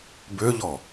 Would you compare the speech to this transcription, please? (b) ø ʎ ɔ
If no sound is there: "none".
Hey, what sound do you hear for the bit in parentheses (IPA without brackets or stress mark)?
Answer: b